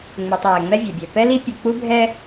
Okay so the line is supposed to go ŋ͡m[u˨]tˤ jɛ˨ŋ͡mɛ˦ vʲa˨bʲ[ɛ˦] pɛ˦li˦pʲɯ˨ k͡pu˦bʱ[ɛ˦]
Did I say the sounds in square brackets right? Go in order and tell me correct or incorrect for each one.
correct, incorrect, correct

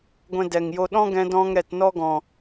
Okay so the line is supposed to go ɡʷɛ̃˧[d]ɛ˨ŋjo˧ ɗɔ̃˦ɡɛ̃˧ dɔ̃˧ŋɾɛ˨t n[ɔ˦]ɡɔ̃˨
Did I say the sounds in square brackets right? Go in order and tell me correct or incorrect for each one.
correct, correct

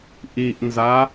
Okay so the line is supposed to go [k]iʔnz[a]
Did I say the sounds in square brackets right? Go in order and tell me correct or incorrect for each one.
incorrect, correct

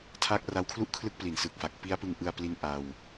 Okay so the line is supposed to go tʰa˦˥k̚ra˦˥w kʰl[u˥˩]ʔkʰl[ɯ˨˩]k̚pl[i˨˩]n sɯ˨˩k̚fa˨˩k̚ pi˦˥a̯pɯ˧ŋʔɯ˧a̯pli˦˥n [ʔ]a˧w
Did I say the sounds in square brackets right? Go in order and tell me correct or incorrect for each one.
correct, incorrect, correct, correct

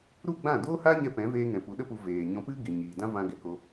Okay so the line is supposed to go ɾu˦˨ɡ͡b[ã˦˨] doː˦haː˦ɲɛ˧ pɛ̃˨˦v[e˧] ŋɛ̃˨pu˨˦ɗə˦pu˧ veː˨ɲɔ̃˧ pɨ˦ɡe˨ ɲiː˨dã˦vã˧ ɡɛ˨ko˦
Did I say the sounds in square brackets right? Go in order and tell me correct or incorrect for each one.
correct, incorrect

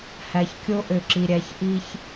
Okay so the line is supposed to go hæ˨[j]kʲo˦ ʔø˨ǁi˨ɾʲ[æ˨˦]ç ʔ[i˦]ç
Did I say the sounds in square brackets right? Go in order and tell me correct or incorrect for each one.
incorrect, correct, correct

